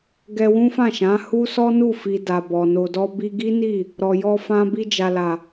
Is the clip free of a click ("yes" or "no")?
yes